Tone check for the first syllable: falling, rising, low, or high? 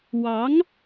rising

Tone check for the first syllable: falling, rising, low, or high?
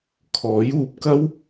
rising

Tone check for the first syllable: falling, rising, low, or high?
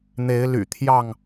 rising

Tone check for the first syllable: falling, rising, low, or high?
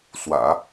low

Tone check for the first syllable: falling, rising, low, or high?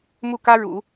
falling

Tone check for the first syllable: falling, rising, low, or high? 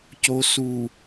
low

